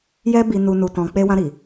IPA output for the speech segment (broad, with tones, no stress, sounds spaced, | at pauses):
j ɛ˧ b i˨ n u˨ n u˨ t ɔ̃˨ k͡p e˧ w ã˧ ɾ i˨